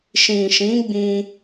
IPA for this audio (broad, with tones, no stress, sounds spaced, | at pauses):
ʃ ĩ˨ ʃ ĩ˨˦ ɡ͡b ĩ˧